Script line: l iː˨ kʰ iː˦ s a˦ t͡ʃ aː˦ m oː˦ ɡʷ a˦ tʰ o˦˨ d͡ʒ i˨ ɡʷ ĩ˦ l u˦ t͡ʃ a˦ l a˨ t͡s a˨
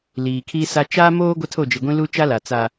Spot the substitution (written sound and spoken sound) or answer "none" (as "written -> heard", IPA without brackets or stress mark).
none